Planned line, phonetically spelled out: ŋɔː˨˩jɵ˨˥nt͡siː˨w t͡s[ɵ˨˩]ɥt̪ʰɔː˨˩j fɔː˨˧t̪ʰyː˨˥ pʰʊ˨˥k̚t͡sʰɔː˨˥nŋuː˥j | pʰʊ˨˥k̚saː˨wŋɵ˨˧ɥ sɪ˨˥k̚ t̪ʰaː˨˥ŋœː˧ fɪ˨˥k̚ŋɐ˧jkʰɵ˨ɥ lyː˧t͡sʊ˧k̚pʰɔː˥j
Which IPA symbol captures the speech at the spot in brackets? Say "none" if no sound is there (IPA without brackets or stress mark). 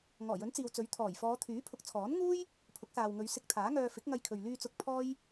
ɵ˨˥